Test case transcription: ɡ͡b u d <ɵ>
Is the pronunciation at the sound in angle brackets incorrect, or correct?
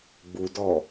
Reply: incorrect